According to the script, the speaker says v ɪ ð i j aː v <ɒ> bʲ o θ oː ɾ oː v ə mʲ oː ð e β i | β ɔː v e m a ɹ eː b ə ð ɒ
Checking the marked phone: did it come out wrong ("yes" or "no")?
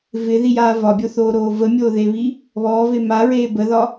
no